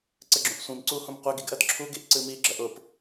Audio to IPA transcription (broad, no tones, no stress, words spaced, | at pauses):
ǀɘɡ͡ǁũʔsʷĩm ǀuhũm qʷɘɡiɡʔɜd ǁʰuɡiʔ ǀɨmi ɡ͡ǁɜʔʊp